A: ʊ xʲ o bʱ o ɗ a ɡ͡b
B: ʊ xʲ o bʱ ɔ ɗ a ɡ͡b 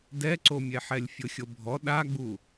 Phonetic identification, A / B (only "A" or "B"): B